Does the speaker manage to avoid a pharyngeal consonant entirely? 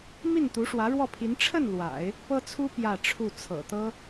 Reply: yes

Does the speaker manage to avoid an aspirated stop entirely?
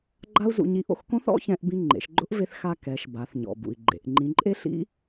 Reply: yes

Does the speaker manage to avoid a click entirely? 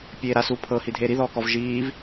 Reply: yes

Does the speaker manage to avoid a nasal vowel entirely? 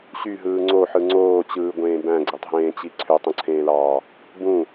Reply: no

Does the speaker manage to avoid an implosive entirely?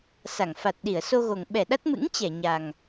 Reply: no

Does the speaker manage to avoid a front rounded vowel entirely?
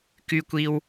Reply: no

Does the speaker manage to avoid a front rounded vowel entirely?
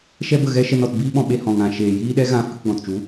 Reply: yes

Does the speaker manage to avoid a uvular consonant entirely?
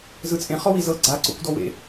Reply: no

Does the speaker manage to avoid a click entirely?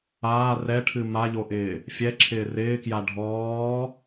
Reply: no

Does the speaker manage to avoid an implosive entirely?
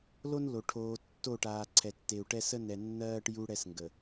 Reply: yes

